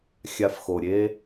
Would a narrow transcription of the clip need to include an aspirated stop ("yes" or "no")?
no